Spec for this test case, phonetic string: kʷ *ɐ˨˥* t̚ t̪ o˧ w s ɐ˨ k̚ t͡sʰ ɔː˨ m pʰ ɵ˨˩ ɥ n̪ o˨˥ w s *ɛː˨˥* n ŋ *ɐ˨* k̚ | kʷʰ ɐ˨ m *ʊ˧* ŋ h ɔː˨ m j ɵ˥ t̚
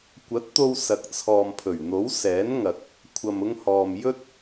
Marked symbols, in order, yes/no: yes, yes, yes, yes

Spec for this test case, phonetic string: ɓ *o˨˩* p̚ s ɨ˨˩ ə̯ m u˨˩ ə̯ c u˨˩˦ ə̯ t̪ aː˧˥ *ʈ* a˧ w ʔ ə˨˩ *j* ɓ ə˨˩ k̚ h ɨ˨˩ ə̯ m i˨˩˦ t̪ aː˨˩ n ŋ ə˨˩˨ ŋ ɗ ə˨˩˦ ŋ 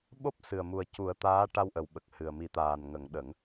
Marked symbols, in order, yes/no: no, yes, no

